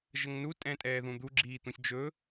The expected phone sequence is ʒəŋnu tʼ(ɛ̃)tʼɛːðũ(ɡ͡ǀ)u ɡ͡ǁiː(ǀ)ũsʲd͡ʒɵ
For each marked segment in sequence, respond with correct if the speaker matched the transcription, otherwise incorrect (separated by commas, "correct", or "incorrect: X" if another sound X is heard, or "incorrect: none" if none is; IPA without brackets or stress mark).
correct, incorrect: d̪, incorrect: t̪